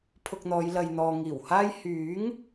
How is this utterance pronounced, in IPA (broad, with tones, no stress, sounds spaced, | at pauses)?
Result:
pʰ ʊ˧ k̚ n̪ ɔː˨˧ j l ɐ˨ j n̪ ɔː˨ ŋ iː˨˩ w h aː˥ j h yː˨˥ ŋ